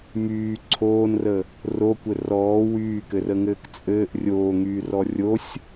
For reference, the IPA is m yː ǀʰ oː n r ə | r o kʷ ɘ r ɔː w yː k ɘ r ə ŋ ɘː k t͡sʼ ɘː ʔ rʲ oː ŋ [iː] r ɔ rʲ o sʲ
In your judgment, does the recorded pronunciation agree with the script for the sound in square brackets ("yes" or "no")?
no